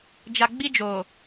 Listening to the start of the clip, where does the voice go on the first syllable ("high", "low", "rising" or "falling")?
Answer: low